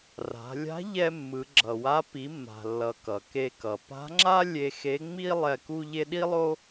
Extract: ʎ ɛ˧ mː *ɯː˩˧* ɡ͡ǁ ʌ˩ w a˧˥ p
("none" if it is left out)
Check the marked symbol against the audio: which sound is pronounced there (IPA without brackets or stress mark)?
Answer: ɯ˩˧